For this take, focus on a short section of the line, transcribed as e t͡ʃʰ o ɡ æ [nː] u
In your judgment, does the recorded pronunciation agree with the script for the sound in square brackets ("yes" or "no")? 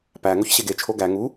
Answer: no